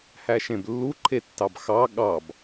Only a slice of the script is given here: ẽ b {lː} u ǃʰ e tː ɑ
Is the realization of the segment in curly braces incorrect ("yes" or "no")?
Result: no